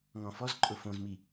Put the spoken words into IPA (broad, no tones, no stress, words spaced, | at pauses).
ŋɔ̃fɔzǃʼʊ fõzmi